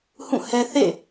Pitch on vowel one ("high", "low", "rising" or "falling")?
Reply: falling